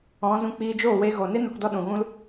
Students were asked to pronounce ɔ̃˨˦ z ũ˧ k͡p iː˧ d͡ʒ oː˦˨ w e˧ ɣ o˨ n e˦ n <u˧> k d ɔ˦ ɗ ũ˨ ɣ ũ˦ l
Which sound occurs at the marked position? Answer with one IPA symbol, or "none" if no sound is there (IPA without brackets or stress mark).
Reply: u˧